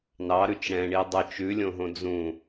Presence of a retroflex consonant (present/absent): present